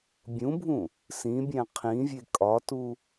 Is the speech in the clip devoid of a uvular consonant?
no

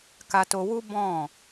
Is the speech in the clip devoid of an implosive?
yes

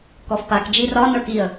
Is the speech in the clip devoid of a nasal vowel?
yes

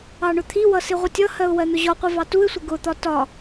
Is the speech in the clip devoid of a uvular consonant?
no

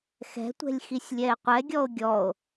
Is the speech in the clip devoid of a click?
yes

